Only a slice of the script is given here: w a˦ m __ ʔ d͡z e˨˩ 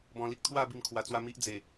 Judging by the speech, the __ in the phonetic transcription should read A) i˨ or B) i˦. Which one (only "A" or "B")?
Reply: B